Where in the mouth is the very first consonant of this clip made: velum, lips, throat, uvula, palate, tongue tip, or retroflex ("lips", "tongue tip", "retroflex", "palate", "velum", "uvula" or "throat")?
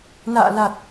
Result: tongue tip